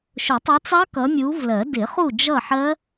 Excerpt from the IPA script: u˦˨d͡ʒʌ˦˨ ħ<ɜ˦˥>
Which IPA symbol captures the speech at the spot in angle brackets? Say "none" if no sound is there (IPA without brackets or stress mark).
ɜ˦˥